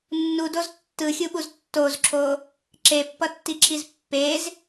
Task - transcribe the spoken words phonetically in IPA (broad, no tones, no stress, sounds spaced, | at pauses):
nː u d o z tː ɯ xʲ u ɓ u z tː o z ǁʰ o | ǁ e pː ʌ tː i ǁʰ i z pː e z